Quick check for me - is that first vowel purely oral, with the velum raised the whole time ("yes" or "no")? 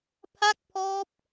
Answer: yes